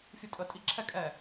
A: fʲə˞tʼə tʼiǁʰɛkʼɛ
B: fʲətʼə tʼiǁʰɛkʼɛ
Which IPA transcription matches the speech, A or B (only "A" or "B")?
B